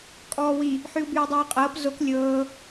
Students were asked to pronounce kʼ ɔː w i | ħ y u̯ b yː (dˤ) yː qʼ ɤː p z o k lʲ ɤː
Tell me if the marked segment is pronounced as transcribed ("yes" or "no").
yes